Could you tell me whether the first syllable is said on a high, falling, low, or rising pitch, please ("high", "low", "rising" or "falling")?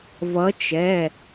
rising